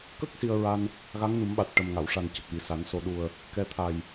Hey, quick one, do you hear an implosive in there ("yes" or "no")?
yes